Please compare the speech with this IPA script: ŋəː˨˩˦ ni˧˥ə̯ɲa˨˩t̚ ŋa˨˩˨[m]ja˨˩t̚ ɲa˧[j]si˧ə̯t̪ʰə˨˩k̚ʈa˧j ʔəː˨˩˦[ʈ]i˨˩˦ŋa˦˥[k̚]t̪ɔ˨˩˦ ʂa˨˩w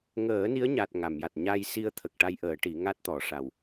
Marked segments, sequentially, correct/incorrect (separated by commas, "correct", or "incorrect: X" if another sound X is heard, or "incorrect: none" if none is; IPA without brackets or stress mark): correct, correct, correct, incorrect: t̚